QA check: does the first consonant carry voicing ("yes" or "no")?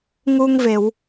yes